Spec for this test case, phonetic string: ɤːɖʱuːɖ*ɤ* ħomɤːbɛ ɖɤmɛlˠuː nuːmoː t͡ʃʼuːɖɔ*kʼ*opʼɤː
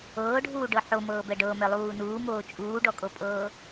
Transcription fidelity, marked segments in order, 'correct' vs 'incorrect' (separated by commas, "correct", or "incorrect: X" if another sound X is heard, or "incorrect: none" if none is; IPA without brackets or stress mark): correct, correct